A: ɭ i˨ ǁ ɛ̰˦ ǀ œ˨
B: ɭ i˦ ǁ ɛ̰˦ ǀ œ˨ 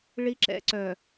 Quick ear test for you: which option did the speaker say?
B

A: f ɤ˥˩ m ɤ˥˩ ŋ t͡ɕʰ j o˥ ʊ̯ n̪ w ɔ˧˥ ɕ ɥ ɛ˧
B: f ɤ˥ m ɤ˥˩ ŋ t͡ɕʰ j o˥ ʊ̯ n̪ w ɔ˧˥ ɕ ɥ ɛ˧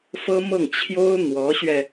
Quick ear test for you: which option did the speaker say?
B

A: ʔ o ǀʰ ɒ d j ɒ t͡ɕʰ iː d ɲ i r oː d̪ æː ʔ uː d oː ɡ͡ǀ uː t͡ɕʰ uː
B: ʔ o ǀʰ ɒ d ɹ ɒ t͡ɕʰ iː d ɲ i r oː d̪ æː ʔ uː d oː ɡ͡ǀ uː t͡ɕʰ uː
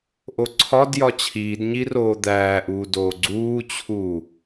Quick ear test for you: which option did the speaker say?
A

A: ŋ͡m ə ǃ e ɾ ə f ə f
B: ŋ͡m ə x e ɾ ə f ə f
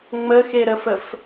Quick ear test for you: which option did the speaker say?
B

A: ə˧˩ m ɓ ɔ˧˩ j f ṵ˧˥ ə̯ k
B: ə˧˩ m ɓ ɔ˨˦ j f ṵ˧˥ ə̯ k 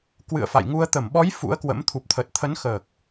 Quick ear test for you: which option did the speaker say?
B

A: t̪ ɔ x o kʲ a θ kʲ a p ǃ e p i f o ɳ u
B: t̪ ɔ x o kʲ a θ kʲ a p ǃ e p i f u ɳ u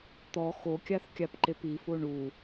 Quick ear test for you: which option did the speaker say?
A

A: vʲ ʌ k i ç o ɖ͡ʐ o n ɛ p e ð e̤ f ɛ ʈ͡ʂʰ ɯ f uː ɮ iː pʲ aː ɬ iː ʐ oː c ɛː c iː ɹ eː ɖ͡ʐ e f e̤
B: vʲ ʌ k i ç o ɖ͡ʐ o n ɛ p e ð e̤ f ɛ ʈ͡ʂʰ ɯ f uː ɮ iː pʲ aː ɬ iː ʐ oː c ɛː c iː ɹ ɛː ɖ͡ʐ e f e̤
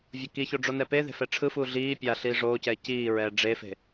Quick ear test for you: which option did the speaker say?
B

